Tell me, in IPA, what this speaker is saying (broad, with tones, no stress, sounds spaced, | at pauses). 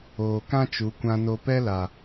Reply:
oː˨ k ã˦ t͡ʃ u˨˦ kʷ ã˧ n o˧ p ɛ˦ l a˨